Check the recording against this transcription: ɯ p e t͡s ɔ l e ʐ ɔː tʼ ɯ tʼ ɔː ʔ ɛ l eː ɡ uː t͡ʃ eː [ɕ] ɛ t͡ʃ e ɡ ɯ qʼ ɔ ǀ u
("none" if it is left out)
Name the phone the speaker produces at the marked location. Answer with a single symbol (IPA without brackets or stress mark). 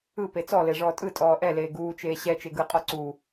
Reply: ɕ